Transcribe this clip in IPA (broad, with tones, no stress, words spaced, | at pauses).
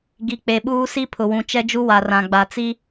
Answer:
ɡi˨k͡pe˨ɓuː˦ si˦pʰʊ˨wũ˨ t͡ʃɛ˦d͡ʒu˦ wa˨rã˨ ɡ͡ba˨t͡si˦